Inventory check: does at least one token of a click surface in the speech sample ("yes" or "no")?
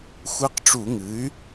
no